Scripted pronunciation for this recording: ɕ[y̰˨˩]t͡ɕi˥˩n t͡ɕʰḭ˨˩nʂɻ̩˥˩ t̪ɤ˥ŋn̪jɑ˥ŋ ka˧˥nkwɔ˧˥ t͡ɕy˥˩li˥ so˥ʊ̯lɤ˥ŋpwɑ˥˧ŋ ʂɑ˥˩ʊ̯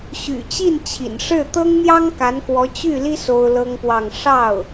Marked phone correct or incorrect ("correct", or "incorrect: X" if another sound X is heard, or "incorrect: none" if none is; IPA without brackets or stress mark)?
correct